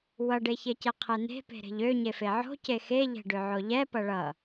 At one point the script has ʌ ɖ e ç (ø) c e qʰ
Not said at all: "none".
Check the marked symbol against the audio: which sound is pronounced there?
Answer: e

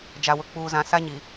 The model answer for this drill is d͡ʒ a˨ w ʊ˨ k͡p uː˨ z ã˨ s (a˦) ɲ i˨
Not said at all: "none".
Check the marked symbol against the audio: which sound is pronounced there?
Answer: a˦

